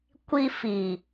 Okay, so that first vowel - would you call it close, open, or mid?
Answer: close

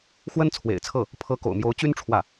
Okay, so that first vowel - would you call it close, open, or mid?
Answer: mid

